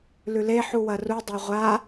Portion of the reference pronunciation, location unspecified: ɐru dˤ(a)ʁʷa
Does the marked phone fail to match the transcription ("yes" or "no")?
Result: no